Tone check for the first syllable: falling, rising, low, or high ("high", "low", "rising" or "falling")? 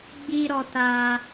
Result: high